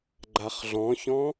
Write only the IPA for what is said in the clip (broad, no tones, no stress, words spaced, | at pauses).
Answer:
ɡ͡ǃaχɮɔ̃çɔ̃